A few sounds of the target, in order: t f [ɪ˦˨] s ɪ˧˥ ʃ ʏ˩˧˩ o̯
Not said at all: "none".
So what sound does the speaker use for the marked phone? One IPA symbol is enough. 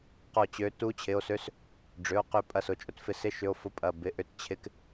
ɪ˦˨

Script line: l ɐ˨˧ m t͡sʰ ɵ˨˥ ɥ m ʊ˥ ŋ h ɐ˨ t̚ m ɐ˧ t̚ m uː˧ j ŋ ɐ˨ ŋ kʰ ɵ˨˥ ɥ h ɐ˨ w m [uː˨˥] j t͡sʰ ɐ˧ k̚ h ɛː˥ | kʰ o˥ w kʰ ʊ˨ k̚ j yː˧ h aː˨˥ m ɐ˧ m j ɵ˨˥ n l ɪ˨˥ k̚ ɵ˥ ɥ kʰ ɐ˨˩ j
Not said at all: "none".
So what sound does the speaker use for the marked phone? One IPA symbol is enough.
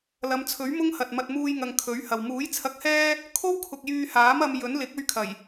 uː˨˥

